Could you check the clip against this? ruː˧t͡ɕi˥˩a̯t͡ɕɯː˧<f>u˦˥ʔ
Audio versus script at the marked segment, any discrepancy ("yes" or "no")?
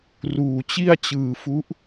no